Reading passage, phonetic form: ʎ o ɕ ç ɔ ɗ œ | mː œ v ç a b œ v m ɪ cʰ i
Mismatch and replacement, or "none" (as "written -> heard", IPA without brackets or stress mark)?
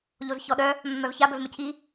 ɕ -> z